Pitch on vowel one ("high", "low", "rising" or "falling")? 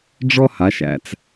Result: high